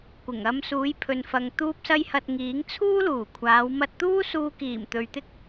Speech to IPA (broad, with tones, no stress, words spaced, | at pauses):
kʷɪ˨˩ŋ ɐ˧msuː˨˧jpʰɵ˨nfɐ˨ŋ t̪uː˧p̚sɐ˧jhɐ˨t̚ ŋiː˨˥ŋt͡sʰuː˥luː˨˩kʷʰaː˨˧w mɐ˧t̚t̪uː˥suː˧ kiː˨˩m t̪ɵ˨ɥt̪ɪ˥k̚